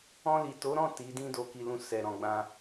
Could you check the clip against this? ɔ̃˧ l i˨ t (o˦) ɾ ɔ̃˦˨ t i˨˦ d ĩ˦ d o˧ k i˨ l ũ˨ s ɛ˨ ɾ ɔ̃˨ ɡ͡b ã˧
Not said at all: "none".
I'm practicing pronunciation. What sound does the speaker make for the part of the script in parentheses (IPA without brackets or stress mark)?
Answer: o˨˦